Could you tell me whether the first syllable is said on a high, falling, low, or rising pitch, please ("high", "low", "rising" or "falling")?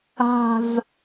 falling